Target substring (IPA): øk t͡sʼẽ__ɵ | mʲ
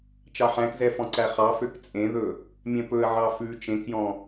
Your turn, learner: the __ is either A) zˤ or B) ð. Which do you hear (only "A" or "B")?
B